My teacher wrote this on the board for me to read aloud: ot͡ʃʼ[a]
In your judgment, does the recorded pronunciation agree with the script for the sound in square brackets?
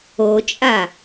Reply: yes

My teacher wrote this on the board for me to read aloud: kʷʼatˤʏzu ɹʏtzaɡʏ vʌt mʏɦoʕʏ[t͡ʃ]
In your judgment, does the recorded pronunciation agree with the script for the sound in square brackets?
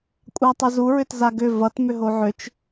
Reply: yes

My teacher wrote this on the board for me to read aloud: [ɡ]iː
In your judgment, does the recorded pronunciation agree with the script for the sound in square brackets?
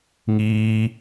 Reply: no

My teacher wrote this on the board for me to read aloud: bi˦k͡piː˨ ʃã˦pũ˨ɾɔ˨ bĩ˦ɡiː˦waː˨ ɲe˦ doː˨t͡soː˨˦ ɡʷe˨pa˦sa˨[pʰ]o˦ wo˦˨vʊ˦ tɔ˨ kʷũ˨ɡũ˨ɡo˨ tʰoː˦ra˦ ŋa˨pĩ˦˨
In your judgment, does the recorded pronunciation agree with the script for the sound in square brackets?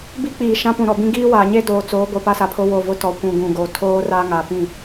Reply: yes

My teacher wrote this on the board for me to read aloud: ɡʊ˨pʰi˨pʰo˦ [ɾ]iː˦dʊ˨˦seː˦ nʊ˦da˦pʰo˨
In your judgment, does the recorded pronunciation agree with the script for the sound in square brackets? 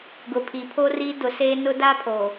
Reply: no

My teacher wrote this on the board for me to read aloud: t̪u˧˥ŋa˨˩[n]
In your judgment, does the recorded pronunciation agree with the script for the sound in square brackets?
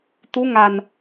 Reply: yes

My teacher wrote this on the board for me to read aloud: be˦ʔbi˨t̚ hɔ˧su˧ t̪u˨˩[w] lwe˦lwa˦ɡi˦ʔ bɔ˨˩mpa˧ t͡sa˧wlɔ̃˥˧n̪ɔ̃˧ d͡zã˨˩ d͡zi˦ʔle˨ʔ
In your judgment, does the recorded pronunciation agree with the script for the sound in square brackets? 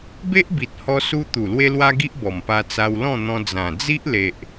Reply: no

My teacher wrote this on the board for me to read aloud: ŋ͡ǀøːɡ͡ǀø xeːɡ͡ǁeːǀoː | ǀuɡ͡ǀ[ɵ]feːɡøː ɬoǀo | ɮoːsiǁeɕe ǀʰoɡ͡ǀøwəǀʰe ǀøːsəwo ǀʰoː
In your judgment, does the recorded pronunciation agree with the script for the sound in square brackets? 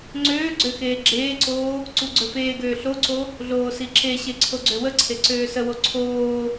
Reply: yes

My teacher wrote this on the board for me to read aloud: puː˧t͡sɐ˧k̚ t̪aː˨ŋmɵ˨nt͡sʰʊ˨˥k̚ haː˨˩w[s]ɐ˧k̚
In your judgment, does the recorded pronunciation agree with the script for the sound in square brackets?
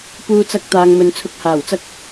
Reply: no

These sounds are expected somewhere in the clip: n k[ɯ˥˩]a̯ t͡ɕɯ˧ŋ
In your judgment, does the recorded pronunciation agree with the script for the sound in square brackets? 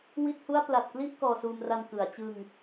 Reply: no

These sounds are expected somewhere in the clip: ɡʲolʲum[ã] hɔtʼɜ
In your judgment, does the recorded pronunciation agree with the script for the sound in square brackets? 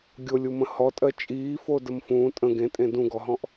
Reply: no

